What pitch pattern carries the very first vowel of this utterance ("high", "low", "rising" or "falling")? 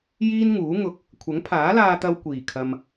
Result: high